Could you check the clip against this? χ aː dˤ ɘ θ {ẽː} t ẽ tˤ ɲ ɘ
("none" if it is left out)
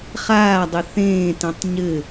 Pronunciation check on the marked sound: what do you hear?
ẽː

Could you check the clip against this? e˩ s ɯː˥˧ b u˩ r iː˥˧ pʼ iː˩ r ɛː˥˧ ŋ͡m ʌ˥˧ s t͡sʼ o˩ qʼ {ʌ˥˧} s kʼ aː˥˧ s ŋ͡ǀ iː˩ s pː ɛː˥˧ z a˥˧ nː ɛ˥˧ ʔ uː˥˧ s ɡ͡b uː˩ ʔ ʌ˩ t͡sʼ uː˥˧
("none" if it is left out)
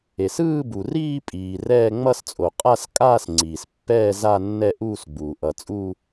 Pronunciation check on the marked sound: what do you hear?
a˥˧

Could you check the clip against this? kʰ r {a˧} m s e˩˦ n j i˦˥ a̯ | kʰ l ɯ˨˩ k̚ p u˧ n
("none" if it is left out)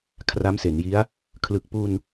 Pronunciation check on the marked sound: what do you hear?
a˦˥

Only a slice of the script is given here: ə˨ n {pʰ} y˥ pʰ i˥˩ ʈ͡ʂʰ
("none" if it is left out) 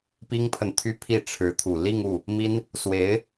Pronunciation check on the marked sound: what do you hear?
t̪ʰ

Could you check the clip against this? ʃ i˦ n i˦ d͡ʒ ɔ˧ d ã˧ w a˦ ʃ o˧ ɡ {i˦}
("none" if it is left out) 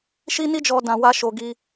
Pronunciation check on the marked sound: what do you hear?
i˦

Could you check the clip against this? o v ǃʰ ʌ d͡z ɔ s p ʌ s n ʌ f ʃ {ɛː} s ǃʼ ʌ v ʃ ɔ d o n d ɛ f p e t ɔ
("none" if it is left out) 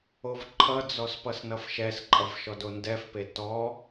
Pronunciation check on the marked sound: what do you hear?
ɛ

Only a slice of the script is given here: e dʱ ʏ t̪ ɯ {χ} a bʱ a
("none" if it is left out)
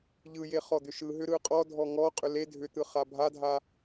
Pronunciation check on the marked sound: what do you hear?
χ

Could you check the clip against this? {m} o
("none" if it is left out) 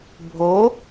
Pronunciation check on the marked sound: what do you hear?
bʱ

